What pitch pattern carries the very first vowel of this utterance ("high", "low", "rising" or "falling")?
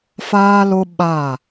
high